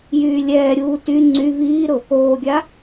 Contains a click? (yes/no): yes